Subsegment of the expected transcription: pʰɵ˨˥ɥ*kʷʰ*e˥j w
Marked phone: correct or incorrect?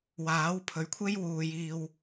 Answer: correct